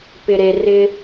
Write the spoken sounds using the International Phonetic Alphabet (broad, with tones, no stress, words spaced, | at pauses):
pɪ˨ɾe˨rɪ˦